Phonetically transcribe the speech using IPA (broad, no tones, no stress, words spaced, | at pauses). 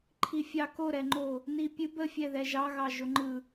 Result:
ǃʰifʲɑ koɾɛŋ͡ǃo | nipʲɨb əfʲɛ ðɛʒɑ ɣɑʒoŋ͡ǃɯ